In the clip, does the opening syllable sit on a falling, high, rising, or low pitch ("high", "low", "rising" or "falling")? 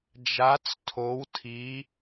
rising